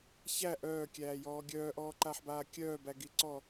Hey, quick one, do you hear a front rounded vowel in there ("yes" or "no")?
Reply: yes